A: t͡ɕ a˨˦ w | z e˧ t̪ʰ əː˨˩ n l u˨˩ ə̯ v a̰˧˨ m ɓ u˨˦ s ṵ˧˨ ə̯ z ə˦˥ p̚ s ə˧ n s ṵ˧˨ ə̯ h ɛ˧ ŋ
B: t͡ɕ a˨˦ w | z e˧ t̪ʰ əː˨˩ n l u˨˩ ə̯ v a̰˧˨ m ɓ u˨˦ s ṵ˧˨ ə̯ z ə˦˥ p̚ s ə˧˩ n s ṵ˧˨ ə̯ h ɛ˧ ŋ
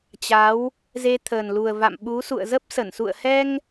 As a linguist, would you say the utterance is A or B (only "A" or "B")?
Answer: B